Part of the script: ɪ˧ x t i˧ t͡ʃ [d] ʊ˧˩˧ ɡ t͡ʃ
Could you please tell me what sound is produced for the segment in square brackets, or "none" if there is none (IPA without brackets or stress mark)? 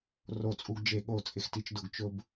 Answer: d